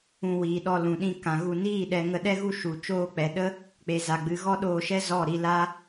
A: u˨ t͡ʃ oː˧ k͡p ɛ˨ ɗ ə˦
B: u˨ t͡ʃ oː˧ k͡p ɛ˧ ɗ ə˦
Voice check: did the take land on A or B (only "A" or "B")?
A